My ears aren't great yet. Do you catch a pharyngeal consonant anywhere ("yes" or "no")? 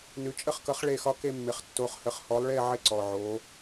yes